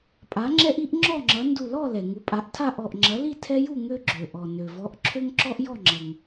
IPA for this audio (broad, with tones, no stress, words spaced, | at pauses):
pʼa˩˥ŋ͡ǁɛ˦ʔi˦ʔ ŋ͡ǁɔ˥˨ŋ͡ǁʌ˩˥ ndu˧˩lɔ˥˨ lɛ˩ŋu˩˥pʼa˩˥ʔtʰa˥˨ ʔɔ˧˩ʔŋ͡ǁɐ˩˥li˥˨ tʰɛ˦ju˥˨ ŋø˦ɡ͡ǁø˩ʔɔ˩ nø˩vɔ˩˥ʔǁʰø˦ŋǁɔ˦ʔ jɔ˥˨ŋ͡ǁʌ˩ŋ